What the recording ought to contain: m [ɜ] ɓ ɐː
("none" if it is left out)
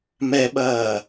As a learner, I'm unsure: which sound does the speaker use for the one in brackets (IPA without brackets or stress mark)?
ɛ